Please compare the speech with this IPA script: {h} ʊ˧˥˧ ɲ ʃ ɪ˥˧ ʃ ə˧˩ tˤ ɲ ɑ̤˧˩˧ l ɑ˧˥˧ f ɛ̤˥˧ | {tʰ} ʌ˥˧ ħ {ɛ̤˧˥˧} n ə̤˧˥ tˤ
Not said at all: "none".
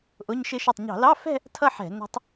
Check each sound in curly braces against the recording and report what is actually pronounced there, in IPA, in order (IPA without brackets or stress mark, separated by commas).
ʔ, tʰ, ɛ̤˧˩˧